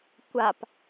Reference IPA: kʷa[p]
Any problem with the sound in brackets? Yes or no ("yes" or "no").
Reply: no